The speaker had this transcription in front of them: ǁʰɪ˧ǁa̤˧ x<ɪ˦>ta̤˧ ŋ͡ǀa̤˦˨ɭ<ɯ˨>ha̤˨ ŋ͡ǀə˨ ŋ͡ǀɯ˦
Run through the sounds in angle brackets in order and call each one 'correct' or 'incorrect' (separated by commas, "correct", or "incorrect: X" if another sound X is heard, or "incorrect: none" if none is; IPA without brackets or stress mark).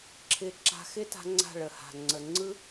correct, incorrect: ə˨